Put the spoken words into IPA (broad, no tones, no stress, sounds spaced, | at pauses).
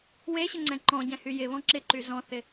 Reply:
w e ɕ ɪ ŋ͡ǀ ɛ̃ ǃ ɔ̃ ɟ ɛ̃ h y j ɪ β ɔ̃ ǁ ɪ ǃ y z ɔ̃ θ ɪ